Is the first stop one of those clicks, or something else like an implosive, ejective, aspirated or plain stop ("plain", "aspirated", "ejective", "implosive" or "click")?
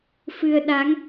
implosive